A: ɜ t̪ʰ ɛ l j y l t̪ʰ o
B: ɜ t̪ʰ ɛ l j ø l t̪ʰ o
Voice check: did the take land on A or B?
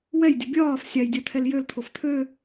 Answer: B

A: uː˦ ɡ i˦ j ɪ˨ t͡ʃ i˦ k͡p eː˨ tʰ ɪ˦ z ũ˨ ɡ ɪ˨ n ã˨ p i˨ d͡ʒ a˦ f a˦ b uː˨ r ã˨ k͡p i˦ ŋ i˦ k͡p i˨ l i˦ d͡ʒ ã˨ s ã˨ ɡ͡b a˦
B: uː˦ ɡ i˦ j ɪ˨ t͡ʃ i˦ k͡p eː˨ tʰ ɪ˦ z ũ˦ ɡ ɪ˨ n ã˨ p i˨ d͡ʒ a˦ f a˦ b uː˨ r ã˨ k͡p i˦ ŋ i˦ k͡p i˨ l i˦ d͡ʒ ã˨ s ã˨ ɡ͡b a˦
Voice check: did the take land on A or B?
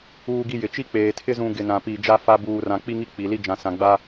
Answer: A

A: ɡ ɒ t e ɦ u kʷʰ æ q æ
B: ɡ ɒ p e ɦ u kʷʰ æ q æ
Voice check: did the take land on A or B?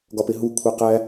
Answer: B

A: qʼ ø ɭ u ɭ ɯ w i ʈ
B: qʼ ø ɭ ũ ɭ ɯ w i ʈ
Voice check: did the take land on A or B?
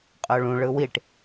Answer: B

